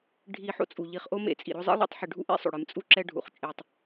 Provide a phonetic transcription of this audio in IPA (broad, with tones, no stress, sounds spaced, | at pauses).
ɖʱ i˨ ħ o̰˦ t͡sʼ u˩ ʎ i˨ χ ʔ o˦ m ḛ˨ t͡sʼ ḭ˩ ɾ o˦ zˤ ḛ˥ lˠ ḭ˦ tˤ ħ ɨ˨ ɖʱ ṵ˥ ʔ ḛ˥ sˤ o̰˩ ɽ ɨ˩ m t͡sʼ u˦ ǁ ɛ˦ ɖʱ ṵ˩ χ t͡ʃʼ e˨ tˤ